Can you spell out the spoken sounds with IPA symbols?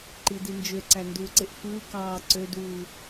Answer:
ǃ i d i n d͡ʒ ø ǀ æ n d uː ǀ e ʔ f ɯː k ɑː ǀ ø d uː

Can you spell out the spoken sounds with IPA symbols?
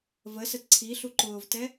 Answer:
v ə s ə t ǀʰ i ɬ u ǃ ʊː v t ɛ

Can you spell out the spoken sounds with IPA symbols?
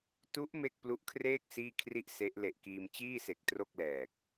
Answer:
t u˦˥ ʔ m e˥˩ k̚ p l u˦˥ ʔ kʰ r eː˥˩ k̚ s iː˥˩ kʰ r i˥˩ ʔ s e˦˥ ʔ l e˨˩ ʔ k iː˧ m t͡ɕ iː˥˩ s e˨˩ k̚ t r o˥˩ k̚ l ɛː˨˩ k̚

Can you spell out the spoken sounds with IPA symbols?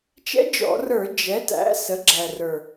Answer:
t͡ʃ ɛ̰˧˥ d͡ʒ ɔ̰˧˩˧ r ə˞˧˩˧ d͡ʒ ɛ˩˥ t æ̰˩˥ s ə˩˥ ɡ͡ǁ æ˨˩ r ə˞˨˩

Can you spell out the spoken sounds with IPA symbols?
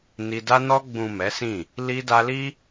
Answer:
n i˧ d a˧ n ɔ˧ ɡ͡b ũ˨ m ɛ˨˦ s ĩ˦˨ | l i˧ d a˧ l i˦

